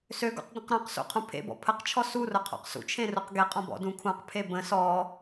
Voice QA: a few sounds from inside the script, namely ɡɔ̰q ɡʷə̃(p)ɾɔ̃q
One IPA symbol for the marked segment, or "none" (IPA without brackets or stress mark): q